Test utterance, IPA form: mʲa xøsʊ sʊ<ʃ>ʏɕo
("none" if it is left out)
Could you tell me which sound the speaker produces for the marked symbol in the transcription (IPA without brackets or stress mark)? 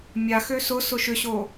ʃ